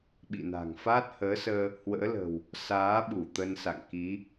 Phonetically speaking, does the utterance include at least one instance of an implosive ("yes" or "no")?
yes